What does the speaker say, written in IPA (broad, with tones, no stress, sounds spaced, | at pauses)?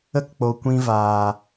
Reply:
ə˦ k k͡p o˨ kʷ ĩ˧ v aː˨